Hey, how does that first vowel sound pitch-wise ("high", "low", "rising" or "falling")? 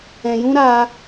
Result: low